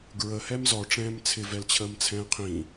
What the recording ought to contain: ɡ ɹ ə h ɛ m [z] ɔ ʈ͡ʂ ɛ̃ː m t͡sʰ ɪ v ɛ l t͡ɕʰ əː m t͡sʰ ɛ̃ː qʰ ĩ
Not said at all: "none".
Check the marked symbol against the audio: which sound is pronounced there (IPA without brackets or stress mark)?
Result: z